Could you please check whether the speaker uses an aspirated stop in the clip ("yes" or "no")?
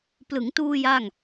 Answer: no